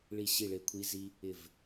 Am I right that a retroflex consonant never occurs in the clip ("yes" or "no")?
no